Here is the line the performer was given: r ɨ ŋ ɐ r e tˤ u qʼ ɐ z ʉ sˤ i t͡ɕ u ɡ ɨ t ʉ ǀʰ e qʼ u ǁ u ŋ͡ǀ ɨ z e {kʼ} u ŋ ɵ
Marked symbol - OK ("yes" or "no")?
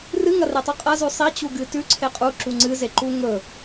no